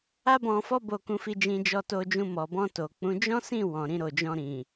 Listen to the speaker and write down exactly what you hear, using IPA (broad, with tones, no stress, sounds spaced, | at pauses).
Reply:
a˦ b ɔ̃˧ f ɔ˦ b o˧ k ũ˧ f i˧ d͡ʒ ĩ˧ d͡ʒ ɔ˧ t o˧ d͡ʒ ũ˧ m ɔ˨ b ɔ̃˧ t o˨ k͡p ũ˨˦ d͡ʒ ɔ̃˦ s ĩ˦˨ w ɔ̃˨ ɾ ĩ˧ ɾ o˨ d͡ʒ ɔ̃˧ ɾ ĩ˨